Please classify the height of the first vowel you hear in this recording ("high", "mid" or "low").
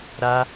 low